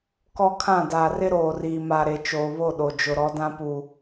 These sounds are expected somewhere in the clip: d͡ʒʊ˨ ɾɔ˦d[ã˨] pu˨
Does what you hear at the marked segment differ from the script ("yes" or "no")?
yes